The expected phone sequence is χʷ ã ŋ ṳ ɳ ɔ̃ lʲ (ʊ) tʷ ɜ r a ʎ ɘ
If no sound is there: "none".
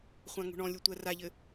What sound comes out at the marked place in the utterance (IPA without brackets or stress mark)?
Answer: ʊ